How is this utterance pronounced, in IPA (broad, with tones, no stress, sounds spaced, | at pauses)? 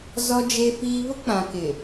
z ɔ˦ d͡ʒ e˦ f iː˦ β ʊ˦ k͡p ã˨ k ɪ˨